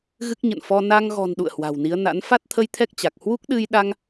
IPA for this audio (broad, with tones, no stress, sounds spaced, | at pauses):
ɣ ɨ˦˥ k̚ ɲ ə̰˧˨ n f ɔ˧ n a˧ ŋ ɣ ɔ̤˨˩ n ɗ ṵ˧˨ ə̯ h w a̤˨˩ w n i˨˦ ə̯ n a̰˧˥ n f a˦˥ t̚ t̪ʰ ə˧ j t̪ʰ ɛ˦˥ k̚ t͡ɕ a˨˩ k̚ h w u˦˥ k̚ ɗ ɨ˧ j ɗ a˧ ŋ